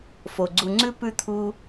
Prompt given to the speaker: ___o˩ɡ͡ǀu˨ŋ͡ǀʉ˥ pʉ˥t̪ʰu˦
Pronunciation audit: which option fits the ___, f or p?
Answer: f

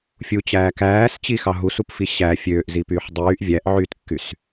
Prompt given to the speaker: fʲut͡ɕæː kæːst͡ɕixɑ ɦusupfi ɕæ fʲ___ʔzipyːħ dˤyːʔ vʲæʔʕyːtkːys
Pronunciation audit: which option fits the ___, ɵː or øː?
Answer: øː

